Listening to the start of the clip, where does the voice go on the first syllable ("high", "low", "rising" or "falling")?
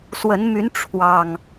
rising